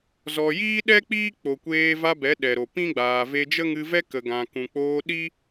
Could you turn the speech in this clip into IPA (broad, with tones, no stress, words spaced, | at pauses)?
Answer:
zɔ˨jiː˦ɗɛ˦ k͡piː˦k͡po˨kʷeː˧va˧ bɛ˨˦ɗɛ˨ɾo˨ pĩ˦ɡ͡baː˨ ve˧d͡ʒə˦ŋɨ˧vɛ˦ kə˨ɡã˨ kũ˨k͡poː˧ ɗi˦